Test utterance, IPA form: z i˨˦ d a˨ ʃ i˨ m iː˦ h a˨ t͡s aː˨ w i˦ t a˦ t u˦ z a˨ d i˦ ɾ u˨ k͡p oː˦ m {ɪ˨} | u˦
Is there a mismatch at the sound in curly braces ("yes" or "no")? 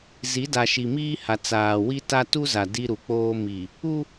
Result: yes